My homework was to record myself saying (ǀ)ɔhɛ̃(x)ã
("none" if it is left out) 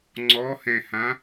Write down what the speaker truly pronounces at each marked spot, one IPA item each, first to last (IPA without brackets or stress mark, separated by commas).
ŋ͡ǀ, h